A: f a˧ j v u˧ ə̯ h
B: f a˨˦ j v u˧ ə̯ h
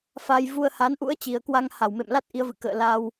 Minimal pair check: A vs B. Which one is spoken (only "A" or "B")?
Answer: A